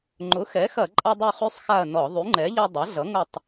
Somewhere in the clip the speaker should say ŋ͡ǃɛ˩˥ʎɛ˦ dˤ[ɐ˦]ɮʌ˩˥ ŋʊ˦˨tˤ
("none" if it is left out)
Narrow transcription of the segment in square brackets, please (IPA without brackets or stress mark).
ɐ˩˥